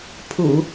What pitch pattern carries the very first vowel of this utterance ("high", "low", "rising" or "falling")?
low